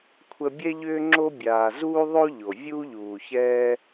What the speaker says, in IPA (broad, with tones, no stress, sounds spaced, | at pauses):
kʷʰ ə˧ bʲ ɛ˦ ʎ ʏː˦ ŋ͡ǁ o˦ bʲ aː˨ z uː˦ ðˤ o˦ ʎ o˨ vʲ uː˦ ʎ uː˨ ç ɛː˦